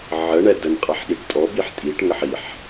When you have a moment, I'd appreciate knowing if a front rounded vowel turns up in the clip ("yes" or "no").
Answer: no